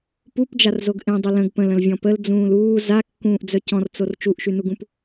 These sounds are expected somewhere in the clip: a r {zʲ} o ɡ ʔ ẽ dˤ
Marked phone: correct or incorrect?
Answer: incorrect